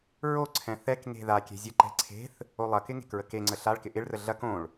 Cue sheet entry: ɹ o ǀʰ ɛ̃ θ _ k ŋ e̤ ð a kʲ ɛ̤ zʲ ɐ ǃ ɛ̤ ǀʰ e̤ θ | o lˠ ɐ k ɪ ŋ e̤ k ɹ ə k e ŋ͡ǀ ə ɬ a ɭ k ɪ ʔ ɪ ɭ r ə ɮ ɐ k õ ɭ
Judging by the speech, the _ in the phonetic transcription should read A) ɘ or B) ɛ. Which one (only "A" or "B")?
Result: B